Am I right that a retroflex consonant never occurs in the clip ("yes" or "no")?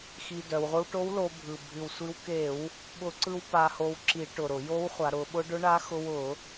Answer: no